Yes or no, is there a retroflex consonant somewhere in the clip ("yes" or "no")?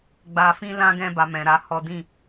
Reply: no